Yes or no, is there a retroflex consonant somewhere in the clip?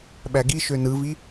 no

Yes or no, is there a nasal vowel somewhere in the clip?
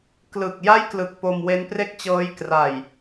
no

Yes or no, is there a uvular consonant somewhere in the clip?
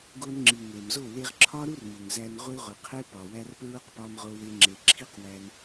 yes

